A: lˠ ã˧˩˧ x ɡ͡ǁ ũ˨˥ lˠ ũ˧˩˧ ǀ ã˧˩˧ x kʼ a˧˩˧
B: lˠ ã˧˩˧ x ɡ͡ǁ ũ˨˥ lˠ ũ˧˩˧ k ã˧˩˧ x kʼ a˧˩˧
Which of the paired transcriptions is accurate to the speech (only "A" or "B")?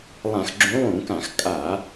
B